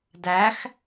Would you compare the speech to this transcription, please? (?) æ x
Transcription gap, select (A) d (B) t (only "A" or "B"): A